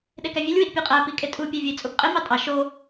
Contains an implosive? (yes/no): yes